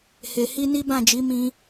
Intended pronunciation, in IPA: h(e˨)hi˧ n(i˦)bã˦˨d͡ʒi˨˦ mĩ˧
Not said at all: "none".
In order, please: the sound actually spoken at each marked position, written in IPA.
e˨, i˦

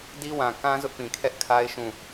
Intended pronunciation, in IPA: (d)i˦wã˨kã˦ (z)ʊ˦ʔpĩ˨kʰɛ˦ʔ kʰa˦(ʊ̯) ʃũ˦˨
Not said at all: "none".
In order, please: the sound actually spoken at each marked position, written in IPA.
d, z, ɪ̯

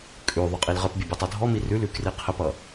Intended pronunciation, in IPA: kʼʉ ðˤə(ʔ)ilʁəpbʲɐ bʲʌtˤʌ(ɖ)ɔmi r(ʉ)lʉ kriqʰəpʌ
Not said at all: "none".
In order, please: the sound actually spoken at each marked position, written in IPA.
qʼ, dʱ, ʉ

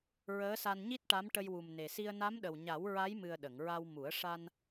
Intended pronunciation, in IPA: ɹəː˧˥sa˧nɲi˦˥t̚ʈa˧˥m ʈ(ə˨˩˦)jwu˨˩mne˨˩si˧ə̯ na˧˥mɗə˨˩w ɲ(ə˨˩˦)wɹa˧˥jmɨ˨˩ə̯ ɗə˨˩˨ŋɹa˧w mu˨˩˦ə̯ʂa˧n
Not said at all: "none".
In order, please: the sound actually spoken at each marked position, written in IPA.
ə˧, a˨˩˦

